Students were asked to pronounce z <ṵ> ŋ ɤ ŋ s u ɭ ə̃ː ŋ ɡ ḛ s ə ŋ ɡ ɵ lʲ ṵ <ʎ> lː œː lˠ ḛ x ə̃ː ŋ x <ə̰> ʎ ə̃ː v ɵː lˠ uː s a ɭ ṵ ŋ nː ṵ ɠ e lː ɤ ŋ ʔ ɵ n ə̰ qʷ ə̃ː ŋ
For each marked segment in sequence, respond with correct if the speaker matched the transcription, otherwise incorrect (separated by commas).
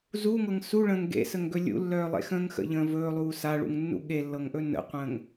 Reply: incorrect, incorrect, correct